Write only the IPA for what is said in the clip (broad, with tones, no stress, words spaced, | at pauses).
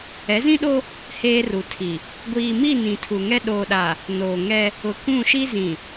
ɛ˨˦zĩ˦ɗo˦ | heː˦ru˨tʰi˨ | ɡʷiː˨mi˦˨ nĩ˨tʰu˨ŋɛ˦ ɗoː˨ɗa˨ | noː˨ŋɛ˦ | ʊ˨kũ˦˨ʃi˦ zĩ˨